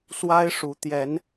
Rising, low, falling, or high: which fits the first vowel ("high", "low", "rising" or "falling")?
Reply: high